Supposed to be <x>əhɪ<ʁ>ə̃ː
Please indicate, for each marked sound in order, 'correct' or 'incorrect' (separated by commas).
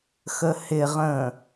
correct, correct